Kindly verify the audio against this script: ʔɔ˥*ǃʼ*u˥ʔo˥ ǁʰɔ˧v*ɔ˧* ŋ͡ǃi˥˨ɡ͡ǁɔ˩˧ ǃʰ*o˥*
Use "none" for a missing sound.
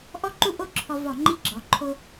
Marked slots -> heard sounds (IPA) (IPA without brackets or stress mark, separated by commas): ǃ, ɔ˧˩˧, o˥